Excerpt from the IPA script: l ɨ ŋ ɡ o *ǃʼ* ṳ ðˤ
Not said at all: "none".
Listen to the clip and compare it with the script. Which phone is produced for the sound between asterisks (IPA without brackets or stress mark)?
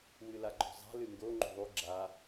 ŋ͡ǃ